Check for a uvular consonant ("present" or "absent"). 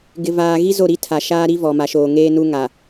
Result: absent